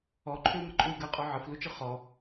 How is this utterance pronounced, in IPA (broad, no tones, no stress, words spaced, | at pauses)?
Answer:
ɔǃʰʏu̯mɐǃʼui̯ ɡɐqʼɔ ʕəflut͡ʃɯ χɔ